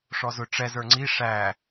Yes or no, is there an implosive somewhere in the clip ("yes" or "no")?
no